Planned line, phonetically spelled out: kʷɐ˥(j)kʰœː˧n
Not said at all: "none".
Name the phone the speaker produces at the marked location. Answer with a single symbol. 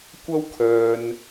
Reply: w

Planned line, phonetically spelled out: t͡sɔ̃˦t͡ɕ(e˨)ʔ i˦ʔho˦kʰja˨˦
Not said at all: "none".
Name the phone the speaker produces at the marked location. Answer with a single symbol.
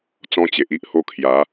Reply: e˨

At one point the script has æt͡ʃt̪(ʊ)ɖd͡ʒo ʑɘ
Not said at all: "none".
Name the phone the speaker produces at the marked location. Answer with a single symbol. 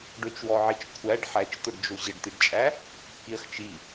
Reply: ʊ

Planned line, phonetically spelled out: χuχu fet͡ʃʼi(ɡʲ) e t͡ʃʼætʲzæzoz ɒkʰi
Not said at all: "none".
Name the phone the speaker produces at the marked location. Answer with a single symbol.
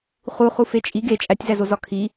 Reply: ɡ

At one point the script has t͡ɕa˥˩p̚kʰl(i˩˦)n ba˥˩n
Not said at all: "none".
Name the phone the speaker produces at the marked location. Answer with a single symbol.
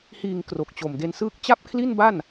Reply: i˥˩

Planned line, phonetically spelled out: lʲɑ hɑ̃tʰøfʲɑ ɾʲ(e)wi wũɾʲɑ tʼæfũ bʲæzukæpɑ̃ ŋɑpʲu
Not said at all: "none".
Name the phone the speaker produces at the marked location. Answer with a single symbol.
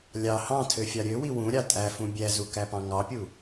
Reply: ø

